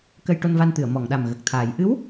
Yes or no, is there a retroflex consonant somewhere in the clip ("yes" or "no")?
yes